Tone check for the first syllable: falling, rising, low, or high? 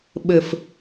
low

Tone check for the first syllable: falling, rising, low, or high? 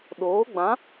rising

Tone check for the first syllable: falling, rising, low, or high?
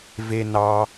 high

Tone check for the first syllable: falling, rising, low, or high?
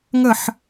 falling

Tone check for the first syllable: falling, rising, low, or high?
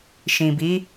low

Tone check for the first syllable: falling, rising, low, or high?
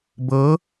rising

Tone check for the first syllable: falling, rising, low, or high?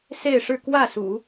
falling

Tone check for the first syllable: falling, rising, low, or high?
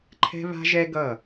high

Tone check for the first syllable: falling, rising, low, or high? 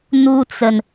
high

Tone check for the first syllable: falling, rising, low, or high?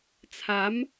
rising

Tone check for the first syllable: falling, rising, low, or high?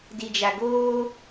low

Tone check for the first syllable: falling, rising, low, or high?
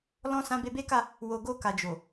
high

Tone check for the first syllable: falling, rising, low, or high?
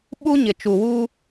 high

